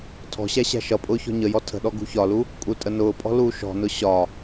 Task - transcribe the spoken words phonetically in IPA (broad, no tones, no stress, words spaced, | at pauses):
tʰɔ̤ɕæ ɕæ̤ʃʌpʼʊː çɔ̤ɲəjɔ tʰə̤ɗɔ ɡṳçɒlu | kʼutʼənʊːpʼɔ̤ luːʃɔ̤nʊ ɕɒ